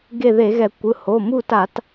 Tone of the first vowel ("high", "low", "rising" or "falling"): falling